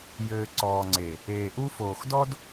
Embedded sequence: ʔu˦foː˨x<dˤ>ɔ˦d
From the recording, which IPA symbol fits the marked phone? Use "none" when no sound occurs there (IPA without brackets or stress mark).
d